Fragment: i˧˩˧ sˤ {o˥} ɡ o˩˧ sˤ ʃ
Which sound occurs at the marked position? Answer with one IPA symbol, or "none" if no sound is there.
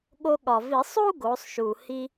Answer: u˥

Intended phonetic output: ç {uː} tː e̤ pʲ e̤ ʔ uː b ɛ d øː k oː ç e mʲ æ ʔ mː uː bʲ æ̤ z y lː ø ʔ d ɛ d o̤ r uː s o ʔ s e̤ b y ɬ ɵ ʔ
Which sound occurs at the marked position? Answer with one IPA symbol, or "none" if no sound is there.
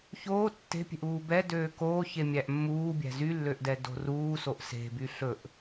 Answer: oː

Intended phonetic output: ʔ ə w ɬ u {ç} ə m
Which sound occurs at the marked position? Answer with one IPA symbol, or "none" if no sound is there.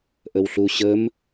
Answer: ɕ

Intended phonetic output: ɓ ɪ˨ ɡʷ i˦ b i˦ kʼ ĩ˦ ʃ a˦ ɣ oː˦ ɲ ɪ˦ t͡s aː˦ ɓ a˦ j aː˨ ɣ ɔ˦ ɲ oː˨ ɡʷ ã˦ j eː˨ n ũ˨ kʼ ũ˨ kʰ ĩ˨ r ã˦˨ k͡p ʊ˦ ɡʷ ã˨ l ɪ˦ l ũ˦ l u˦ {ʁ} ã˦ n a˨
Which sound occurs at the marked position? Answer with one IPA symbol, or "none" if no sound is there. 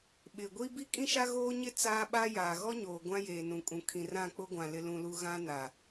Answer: ɣ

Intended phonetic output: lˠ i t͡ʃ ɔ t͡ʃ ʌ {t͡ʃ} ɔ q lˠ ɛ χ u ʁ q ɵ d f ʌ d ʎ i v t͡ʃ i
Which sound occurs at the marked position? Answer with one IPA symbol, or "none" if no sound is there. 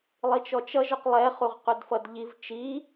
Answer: ʒ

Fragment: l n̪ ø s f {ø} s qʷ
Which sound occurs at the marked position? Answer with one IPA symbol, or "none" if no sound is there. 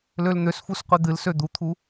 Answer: u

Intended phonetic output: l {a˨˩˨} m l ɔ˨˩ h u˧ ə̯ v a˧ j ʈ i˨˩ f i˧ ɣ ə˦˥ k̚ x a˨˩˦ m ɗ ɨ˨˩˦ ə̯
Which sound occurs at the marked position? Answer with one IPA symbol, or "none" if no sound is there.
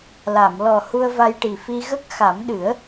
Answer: a˨˩˨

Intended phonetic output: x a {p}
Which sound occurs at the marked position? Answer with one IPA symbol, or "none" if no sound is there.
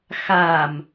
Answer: m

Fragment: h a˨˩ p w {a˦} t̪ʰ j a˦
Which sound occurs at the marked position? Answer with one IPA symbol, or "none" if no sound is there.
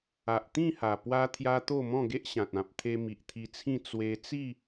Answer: a˦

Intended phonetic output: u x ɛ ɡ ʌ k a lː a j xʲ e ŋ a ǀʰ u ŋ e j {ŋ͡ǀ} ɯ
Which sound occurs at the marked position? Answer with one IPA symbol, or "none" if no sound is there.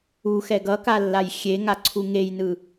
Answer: n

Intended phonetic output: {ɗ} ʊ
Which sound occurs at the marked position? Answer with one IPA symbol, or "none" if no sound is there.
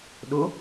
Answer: ɗ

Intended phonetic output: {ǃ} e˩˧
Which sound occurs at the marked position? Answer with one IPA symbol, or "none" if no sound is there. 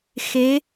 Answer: x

